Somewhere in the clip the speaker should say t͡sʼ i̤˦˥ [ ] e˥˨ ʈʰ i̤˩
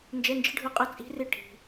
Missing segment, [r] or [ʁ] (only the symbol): r